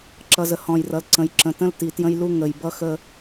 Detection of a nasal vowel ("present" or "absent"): present